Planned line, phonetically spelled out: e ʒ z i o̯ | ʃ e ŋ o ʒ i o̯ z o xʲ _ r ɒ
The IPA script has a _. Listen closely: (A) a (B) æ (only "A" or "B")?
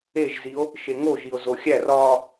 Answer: B